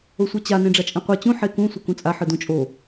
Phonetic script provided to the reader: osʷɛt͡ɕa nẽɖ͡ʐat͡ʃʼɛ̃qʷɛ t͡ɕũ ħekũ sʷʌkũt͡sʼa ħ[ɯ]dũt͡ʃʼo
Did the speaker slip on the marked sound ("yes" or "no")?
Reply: no